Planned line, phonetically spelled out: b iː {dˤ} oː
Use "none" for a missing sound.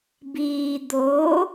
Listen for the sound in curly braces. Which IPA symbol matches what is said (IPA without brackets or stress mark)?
d̪